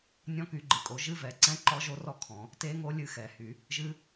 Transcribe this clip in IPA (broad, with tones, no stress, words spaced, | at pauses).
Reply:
nʲɔ̃˦˥ky˨˩˦ɡ͡ǃɨ˩kʼo˨˩˦ ʒɨ˦˥vɛ˨˩˦ǀɛ̃˦˥ ǃɔ˦˥ʒo˦˥rɔ˦˥ kʰɔ̃˨˩˦ | te˦˥ŋo˦˥ lʲɨ˦˥xɛ˨˩˦hy˨˩˦ | ʒɨ˦˥